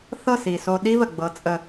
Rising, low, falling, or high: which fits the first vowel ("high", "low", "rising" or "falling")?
falling